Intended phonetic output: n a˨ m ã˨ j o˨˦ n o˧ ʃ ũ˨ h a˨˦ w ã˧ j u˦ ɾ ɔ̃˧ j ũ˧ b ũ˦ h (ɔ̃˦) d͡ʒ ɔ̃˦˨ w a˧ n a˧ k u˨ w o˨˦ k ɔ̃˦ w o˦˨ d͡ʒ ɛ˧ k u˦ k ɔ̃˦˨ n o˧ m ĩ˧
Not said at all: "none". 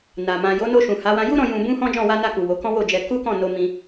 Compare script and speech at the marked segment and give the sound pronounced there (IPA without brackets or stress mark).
ɔ̃˦